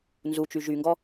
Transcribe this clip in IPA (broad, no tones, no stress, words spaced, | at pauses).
nzut͡ʃy ʒyŋɡɔ